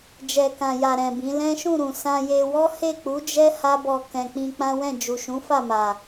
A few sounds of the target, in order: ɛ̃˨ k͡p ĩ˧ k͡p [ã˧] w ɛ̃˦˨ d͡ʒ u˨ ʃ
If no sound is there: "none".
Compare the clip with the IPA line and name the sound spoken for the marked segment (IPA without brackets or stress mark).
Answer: ã˦